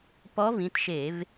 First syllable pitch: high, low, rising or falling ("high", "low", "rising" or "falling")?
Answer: rising